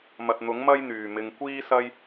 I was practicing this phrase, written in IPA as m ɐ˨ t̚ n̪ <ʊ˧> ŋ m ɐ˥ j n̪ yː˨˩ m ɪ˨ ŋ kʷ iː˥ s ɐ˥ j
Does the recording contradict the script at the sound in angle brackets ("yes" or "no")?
yes